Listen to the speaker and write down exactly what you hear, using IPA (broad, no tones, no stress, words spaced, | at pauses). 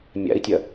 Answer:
mʲa̰i̯tʲɐ